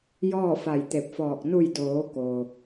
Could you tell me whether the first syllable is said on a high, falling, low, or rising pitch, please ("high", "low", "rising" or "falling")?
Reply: falling